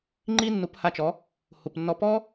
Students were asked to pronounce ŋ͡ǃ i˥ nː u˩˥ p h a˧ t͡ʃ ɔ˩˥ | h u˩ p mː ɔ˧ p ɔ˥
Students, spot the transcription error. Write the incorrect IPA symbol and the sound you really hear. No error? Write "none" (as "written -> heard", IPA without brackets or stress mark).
mː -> nː